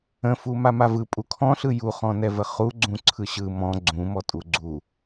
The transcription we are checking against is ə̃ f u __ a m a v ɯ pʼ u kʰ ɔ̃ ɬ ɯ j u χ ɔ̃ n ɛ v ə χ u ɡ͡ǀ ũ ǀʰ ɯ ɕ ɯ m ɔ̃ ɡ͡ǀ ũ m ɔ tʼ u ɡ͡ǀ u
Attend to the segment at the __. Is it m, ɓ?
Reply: m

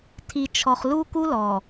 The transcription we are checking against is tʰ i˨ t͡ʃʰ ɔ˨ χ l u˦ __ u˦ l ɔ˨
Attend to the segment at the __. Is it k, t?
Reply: k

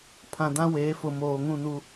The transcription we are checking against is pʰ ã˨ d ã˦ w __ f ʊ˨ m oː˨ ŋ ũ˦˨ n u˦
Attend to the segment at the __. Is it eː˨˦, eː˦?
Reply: eː˨˦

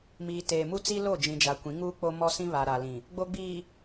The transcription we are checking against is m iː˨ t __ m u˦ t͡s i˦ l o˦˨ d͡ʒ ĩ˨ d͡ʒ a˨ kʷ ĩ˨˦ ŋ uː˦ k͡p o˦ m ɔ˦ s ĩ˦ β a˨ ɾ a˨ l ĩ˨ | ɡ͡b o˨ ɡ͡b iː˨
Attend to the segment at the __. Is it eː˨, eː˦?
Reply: eː˨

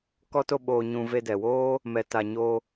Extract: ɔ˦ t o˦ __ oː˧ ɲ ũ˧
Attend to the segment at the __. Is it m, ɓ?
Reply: ɓ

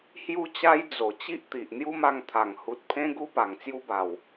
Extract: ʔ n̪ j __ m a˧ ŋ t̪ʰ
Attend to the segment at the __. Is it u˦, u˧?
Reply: u˦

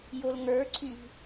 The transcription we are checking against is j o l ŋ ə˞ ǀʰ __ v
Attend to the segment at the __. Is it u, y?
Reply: y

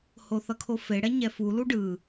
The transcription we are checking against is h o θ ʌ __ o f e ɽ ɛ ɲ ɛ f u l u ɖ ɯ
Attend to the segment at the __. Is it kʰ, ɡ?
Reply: kʰ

